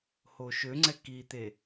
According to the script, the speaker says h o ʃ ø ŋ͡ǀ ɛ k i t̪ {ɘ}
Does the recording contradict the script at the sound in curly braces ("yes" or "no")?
yes